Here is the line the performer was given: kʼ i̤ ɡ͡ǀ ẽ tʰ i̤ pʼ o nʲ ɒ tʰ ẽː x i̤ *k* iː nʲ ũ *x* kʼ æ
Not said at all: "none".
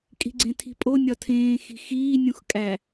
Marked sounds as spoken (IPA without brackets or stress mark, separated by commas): x, x